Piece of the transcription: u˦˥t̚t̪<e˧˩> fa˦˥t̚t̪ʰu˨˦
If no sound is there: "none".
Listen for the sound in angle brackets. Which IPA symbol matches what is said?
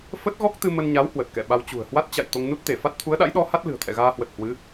e˧˩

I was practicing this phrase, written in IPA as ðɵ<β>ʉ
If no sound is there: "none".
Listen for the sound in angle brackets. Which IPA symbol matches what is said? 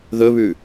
β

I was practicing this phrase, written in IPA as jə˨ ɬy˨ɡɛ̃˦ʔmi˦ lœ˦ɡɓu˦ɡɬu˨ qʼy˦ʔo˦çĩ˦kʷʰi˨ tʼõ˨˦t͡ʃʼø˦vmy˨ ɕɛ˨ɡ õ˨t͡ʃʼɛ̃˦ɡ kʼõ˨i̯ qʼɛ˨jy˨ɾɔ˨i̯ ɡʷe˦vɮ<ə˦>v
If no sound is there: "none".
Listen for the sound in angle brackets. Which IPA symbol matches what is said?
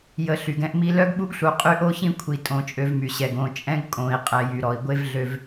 ø˦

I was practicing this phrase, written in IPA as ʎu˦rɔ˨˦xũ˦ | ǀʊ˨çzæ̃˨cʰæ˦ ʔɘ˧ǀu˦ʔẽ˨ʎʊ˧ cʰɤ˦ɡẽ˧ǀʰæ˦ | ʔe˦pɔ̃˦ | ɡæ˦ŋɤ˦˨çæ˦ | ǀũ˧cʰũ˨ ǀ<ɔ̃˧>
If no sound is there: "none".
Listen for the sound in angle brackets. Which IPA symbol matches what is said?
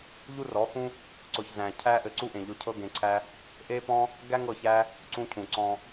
ɔ̃˧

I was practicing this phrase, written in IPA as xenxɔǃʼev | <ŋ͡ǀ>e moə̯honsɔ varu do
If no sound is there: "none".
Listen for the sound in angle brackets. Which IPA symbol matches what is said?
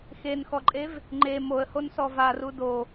ŋ͡ǃ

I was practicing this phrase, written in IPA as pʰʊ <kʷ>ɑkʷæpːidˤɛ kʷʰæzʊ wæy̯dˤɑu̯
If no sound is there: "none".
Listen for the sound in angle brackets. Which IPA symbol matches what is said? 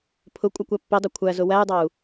kʷʼ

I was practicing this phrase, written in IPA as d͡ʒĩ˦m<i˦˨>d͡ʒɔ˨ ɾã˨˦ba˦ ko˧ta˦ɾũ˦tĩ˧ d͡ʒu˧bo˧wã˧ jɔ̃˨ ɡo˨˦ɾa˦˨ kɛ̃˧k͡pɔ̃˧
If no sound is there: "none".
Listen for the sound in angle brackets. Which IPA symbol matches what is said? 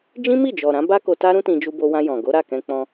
i˦˨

